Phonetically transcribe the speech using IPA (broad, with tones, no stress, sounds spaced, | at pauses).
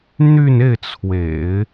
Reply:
n̪ y˥˧ n e˥˩ ɪ̯ t͡sʰ w ḛ˨˩˦ ɪ̯